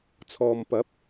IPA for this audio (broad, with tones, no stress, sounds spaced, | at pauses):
t͡sʰ ɔː˨ m p ɐ˨˥ p̚